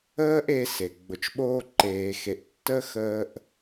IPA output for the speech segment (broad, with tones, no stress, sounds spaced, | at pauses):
əː˥ ʔ e˧ s e˩ ɡ͡b ʊ˩ t͡ʃ ɓ oː˧ ǃ eː˩ x e˩ ʔ tː ə˧ x əː˧ ʔ